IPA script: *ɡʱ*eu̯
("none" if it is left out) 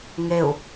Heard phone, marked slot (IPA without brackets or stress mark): ŋ